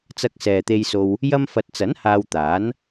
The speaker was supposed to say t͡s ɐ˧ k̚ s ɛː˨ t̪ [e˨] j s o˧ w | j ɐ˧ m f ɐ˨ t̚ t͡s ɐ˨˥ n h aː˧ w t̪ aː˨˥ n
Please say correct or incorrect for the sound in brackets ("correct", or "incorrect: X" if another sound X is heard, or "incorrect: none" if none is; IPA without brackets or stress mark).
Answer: incorrect: e˧